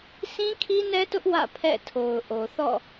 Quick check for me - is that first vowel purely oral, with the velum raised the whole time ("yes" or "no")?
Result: no